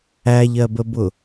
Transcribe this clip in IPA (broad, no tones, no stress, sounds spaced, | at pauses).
æ ʎ ɜ b ə b ʊ